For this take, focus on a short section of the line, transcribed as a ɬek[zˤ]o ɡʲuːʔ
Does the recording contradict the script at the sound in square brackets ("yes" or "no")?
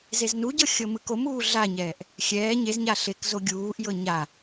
yes